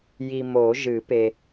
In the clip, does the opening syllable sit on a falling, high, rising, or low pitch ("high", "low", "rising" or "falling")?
low